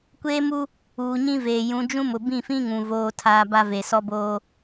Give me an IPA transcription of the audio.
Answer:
kʷ eː˦ m u˦ | uː˨ ɲ ĩ˦ v eː˨ j ũ˨˦ d͡ʒ ũ˦ m ʊ˨ b ĩ˦˨ f ĩ˦ ŋ ũ˨ v oː˦ tʰ aː˦ b a˦ v e˨ s ɔ˦ b oː˦

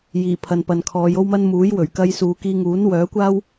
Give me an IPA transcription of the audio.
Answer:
j iː˨˩ pʰ ɐ˨ n p ɐ˨ n kʰ ɔː˨˧ j o˥ w m ɐ˥ n m uː˨˥ j w ɵ˨˩ ɥ k ɐ˧ j s uː˨˧ k iː˧ ŋ uː˨˥ n w œː˨˥ kʷ aː˥ w

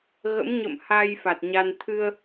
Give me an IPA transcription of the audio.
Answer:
ɣ ə̰˧˥ m ɲ ə̰˧˨ m h a˧ j f a˨˩ t̚ ɲ a˧ n t̪ʰ ɨ˧ ə̯

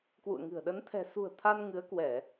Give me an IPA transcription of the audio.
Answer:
k w ṵ˧˨ ə̯ ŋ ɨ̤˨˩ ə̯ ɗ ə˨˦ n t̪ʰ ɛ̤˨˩ s ṳ˨˩ ə̯ t̪ʰ a˧ n ŋ ɨ˨˦ ə̯ k w ɛ˧˩˨

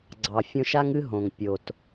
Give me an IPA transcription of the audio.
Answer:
ɡ͡ǀ ɑ˨ fʲ õ˧ ʃ a˦ ŋ ɨ˦ ɦ õ˨ ŋ pʲ o˨ t

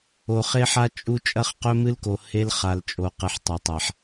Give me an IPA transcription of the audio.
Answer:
o˨ χ e˦ ħ a˦ t͡ʃʼ u˦ t͡ʃʼ ɐ˦ χ q ɵ˦ m ɨ˦ l k o˨ h e˦ l χ a˨ l t͡ʃʼ o˨ q ɨ˨ ħ tˤ ɐ˨ tˤ a˨ ħ

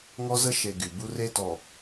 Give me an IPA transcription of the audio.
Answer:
ŋ ɔ˦ z ə˦ ʃ e˨ ɡ y˨ b u˦ r e˦ t ɔ˨

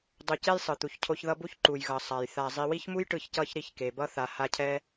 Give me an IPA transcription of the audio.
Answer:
dˤ u˨ c ɛ˥ j sˤ ɯ˩ t̪ u˨ ç cʰ o˦ ç ð ʌ˥ b u˥ ç ǃ u˩ j ɣ ʌ˩ sˤ a˩ j θ a˨ zˤ i˨ w i˥ ç m u˥ j ʈ ɯ˨ ç c ʌ˦ ç ɾ i˦ ç k e˩ b ʌ˥ θ a˩ h a˦ cʰ ɛ˥

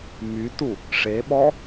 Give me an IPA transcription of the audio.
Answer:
m y t u | ʂ e ɓ ɔ

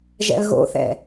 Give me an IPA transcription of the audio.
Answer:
ʒ ɛ̰ ə̯ ɣ o̰ θ ɛ̰

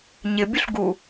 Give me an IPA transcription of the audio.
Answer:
ɲ ɪ bʲ u ɬ ɡ u

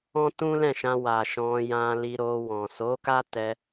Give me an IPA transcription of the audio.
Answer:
ɔ̃˦ t ũ˦ l ɛ̃˦˨ ʃ ã˧ w a˨ ʃ ɔ̃˧ j ã˧ l i˧ ɾ o˧ w ɔ̃˨ s o˨˦ k a˦ t ɛ˧

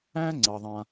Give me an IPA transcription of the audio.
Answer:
æ̃˥ ŋ͡ǀ ʌ˩ ðˤ ã˨

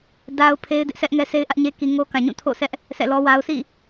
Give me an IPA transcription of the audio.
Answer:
d a˦ ʊ̯ pʰ e˦ ɪ̯ d ɪ˦ ʔ sʰ ɛ˦ ʔ ŋ ɛ˦ sʰ e˦ ɪ̯ ʔ ä˦ ʔ ɲ e˦ k i˨ ŋ o˦ k ã˨ ɲ ũ˦˨ tʰ o̰˦˨ sʰ ɛ˦ ʔ | sʰ ɛ̰˦˨ l ɔ˦ w a˦ ʊ̯ sʰ ḭ˦˨

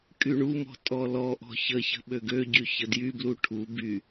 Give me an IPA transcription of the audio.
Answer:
kʼ y ɳ u m ɔ̤ tʼ ɔ l ɔ ʔ ɔ̤ ç ə ç ə̤ ɓ ø ɡ ø ɟ y ç ə d j y b l u ʈʰ u b y

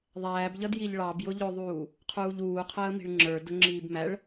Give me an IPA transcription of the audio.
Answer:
ðˤ æː b ʎ ʌ d j i ʎ ɭ ɑ b j ʊ ʎ ʊ ðˤ uː | qʰ uː ʎ uː qʰ əː m i̤ ɭ ŋ͡ǁ ə˞ d ʊ ŋ͡ǁ iː b m æ ɭ

